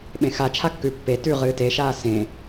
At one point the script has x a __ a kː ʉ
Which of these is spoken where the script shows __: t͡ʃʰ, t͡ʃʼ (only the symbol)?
t͡ʃʰ